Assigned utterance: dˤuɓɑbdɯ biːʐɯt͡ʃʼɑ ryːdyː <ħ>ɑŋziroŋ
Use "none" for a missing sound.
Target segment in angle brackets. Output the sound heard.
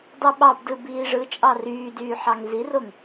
ħ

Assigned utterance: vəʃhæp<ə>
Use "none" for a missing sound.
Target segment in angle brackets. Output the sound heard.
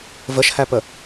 ə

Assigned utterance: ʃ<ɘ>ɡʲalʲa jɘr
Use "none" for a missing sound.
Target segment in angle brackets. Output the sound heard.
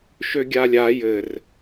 ø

